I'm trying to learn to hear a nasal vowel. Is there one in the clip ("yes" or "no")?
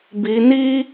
no